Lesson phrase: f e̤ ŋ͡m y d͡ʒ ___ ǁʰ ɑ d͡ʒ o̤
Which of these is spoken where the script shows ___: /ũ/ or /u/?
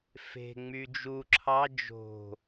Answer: u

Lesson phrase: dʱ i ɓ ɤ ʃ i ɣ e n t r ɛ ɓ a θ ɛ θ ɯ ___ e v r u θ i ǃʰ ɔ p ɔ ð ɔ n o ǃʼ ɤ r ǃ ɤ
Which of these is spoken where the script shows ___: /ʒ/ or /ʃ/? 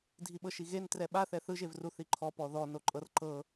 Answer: ʒ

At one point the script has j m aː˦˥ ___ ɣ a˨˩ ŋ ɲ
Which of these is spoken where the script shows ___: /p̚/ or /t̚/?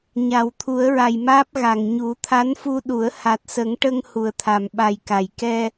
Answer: p̚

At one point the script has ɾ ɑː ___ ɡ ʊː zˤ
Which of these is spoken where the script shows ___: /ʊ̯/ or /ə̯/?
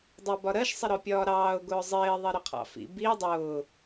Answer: ʊ̯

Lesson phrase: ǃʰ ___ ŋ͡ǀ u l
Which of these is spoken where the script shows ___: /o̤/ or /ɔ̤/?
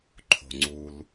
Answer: o̤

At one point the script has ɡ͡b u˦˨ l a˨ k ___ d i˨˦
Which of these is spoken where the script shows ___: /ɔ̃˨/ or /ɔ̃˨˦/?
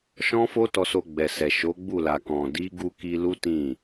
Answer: ɔ̃˨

